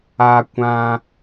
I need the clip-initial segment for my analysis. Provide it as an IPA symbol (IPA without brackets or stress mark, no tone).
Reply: a